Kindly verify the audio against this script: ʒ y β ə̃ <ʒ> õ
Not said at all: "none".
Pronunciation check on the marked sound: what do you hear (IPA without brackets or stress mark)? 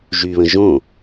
ʒ